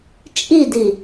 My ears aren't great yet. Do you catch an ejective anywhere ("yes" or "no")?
yes